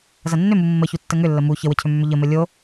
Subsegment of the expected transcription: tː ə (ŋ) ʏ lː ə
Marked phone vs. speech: correct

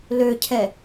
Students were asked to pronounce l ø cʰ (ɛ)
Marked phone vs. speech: correct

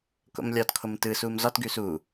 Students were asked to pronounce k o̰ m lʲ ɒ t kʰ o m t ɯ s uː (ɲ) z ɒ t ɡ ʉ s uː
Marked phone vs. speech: incorrect: m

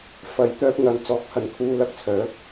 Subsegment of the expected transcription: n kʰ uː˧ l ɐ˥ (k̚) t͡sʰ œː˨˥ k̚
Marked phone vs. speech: correct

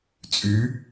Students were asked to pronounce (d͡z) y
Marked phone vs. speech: incorrect: t͡sʼ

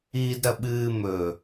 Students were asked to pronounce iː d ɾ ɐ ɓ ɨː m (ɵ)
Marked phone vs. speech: correct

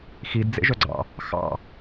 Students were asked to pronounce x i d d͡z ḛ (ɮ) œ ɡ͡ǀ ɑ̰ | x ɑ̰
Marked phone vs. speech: incorrect: ʒ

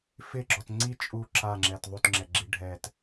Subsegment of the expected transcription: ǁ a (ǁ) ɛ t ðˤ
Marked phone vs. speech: incorrect: ŋ͡ǁ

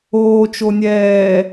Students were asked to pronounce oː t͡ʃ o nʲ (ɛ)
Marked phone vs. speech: incorrect: ɛː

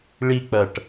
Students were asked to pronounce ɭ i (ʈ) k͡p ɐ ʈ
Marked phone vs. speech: incorrect: none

